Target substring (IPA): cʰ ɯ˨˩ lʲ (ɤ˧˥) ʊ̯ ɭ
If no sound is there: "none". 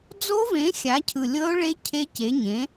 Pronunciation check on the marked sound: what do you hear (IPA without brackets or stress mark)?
ɤ˧˥